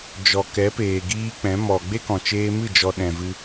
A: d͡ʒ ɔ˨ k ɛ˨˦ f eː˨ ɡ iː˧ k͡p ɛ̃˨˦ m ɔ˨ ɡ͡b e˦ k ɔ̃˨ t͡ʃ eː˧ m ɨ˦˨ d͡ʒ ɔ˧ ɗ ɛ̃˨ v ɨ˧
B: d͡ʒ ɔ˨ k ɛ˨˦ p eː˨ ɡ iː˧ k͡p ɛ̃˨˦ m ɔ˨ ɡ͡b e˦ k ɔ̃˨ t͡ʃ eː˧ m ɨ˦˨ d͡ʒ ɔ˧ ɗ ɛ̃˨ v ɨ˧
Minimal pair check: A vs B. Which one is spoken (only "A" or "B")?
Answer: B